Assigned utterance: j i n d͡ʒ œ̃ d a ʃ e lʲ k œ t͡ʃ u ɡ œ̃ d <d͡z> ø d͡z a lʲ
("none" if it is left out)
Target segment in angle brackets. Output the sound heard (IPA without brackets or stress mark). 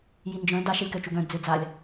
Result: d͡z